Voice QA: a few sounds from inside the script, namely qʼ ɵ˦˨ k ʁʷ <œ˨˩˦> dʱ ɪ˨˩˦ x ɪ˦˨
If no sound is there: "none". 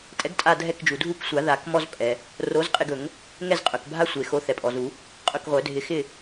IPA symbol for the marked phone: œ˨˩˦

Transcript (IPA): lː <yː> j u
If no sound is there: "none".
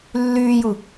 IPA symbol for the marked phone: yː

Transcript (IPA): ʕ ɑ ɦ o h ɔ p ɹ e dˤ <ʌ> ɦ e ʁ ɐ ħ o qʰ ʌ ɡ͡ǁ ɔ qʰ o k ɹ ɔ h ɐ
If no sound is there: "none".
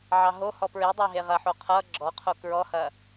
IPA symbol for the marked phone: ɑ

